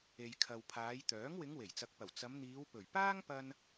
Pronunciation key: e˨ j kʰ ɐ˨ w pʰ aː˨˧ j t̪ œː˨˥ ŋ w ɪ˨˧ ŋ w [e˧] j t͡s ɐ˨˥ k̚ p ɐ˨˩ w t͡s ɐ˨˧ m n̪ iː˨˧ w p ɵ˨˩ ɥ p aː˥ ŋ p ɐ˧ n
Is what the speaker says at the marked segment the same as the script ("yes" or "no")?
no